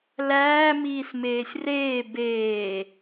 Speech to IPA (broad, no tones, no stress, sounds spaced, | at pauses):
l æː m iː s m eː sʲ r eː b eː